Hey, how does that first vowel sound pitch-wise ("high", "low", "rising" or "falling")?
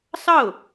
falling